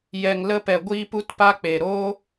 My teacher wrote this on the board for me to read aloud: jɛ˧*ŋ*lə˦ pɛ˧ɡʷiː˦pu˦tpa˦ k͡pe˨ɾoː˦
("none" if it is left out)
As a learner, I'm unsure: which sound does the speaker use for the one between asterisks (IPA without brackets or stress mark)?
ŋ